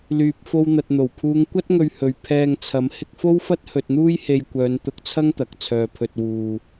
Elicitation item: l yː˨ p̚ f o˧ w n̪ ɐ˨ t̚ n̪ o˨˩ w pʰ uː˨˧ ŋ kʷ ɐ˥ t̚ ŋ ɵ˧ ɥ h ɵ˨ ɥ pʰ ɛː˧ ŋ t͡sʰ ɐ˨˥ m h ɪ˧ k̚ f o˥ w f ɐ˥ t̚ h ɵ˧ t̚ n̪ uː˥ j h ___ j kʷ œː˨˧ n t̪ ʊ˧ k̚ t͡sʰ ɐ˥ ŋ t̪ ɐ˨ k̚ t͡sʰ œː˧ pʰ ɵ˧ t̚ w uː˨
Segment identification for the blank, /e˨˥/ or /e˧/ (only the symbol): e˧